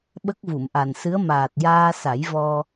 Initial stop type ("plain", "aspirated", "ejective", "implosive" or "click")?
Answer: implosive